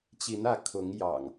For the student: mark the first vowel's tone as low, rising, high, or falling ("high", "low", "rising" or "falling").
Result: rising